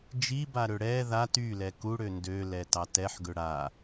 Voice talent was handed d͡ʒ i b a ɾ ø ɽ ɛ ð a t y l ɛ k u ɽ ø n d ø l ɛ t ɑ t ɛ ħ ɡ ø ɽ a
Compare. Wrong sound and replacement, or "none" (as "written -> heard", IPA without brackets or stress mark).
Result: none